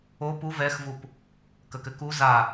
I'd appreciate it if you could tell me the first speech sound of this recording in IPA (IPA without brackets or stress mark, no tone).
o